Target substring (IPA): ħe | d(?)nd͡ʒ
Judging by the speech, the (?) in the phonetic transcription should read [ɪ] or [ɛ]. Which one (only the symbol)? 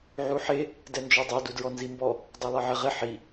ɛ